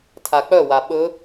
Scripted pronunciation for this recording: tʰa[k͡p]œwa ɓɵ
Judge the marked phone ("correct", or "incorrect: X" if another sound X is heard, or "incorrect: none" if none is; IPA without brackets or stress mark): correct